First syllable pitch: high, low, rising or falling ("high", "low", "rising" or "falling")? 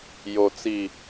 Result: low